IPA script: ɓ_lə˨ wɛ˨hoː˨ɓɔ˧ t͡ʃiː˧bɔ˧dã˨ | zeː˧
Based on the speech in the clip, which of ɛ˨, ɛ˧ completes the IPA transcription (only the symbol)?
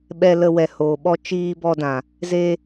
ɛ˨